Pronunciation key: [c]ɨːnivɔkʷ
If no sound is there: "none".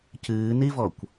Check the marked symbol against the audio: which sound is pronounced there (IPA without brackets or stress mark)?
c